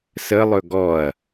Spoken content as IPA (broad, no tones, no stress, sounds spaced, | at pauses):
s ə lˠ ɵ ɡ ɔ ɐ̯